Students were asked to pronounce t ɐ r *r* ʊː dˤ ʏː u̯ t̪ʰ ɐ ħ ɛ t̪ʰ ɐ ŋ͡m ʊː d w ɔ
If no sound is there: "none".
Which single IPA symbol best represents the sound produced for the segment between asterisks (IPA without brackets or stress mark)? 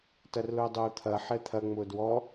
l